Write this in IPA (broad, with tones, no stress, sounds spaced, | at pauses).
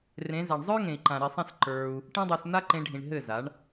r ẽ˨˦ z a˨ ɳ zˤ ə˞˦ ŋ ẽ˨ i̯ ǃ ã˨ ɾ i˨ sˤ ĩ˦˨ s ǃ ə˞˧ u̯ | ʈ ĩ˦ dˤ ə˞˧ s n̪ a˦ ǃ ẽ˧ ɖʱ ĩ˨ ɳ ɦ ɘ˦˨ z a˨˦ ɳ